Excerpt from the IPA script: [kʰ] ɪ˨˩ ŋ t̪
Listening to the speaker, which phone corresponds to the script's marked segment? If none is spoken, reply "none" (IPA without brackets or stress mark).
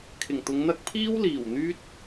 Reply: kʰ